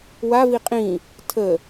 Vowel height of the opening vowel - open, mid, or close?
open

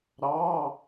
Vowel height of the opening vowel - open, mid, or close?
open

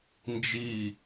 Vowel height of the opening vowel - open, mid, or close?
close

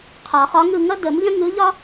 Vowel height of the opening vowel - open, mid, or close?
open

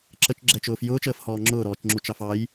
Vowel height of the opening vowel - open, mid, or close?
mid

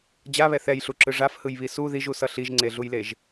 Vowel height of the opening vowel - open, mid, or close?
open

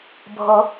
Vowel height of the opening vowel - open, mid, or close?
mid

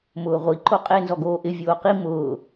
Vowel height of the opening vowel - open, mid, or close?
close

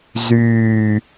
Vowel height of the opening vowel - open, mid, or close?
close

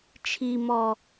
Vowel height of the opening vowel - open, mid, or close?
close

